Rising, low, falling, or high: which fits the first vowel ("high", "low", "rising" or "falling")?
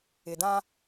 low